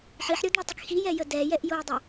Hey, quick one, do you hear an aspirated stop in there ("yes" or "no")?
no